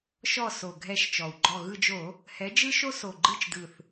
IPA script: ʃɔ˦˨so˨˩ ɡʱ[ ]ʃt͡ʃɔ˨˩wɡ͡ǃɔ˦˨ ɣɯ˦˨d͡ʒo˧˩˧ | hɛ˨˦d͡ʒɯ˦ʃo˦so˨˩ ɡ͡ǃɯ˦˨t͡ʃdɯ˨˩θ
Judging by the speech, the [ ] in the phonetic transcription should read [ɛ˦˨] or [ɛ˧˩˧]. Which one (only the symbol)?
ɛ˦˨